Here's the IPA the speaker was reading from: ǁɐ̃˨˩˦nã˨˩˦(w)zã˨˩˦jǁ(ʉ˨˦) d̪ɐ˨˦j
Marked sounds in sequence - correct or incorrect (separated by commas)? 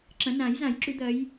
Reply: incorrect, incorrect